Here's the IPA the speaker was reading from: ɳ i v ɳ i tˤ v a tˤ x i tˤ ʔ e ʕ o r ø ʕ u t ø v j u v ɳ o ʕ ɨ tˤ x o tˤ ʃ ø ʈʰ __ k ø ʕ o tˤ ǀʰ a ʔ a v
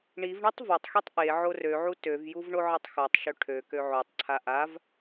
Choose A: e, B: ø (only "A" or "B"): B